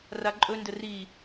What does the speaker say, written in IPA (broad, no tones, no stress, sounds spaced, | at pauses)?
r a ǃʼ ɵ n d ə r i